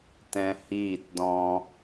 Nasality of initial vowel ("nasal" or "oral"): nasal